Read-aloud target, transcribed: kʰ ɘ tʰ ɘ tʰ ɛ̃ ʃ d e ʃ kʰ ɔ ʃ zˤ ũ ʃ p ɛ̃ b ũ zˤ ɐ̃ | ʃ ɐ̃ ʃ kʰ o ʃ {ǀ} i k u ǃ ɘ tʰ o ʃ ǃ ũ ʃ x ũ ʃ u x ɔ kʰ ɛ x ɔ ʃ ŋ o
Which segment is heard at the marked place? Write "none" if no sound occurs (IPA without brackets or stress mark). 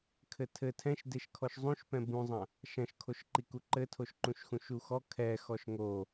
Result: ǃ